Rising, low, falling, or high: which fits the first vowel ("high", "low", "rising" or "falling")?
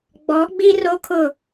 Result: rising